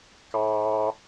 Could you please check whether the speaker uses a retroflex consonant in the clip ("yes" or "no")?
no